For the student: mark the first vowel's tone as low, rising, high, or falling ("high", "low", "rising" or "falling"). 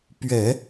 low